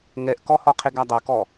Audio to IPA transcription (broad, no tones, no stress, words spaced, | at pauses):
ŋɛʔkɔhɔqʰeɡ adˤokɔ